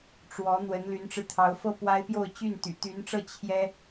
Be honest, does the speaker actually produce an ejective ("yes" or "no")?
no